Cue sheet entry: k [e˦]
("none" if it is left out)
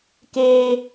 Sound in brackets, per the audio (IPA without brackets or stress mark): eː˦